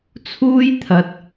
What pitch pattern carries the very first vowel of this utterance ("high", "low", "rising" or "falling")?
high